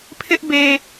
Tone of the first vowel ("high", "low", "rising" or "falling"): high